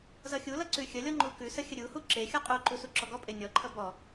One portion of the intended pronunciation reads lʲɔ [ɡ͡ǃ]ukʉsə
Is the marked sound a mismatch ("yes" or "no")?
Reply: yes